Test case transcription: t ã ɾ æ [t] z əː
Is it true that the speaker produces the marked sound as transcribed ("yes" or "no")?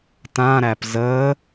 no